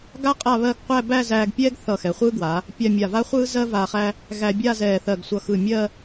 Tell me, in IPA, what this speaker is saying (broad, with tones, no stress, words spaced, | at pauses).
ɡa˥ qʼa˥˧βɜ˥˧ɡ qʷæ˥˧bæ˥˧zæː˧ɡpʲɛː˥ɡ θʌ˧˩xɛ˩˧χʷɯː˥ɡwaː˩˧ | pʲa˥˧mʲa˧˩ va˥χʷɯː˥zɜ˥ va˧χæ˥ | ɣæ˧bʲaː˥˧zɛː˧˩ θɜ˧˩ɡsʷʌ˧˩xɯ˧˩ mʲɜ˥˧